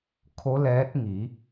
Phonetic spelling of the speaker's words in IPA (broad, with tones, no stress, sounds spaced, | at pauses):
kʰ o˧˥ l ɛː˧˥ t̚ ŋ i˩˧